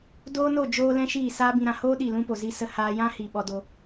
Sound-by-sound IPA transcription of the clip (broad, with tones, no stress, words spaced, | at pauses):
doː˦no˦˨ d͡ʒoː˦lɛ̃˦ʃiː˦˨ saː˦bĩ˧ɾã˧ hoː˦ ɗi˦˨lũ˦po˨ zi˧sə˧ haː˧jã˦hi˨ ɓɔ˧ do˧